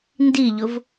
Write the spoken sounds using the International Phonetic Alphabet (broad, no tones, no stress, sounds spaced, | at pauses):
n d i ʎ ʊ v